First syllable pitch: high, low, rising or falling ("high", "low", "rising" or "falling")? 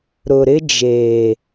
low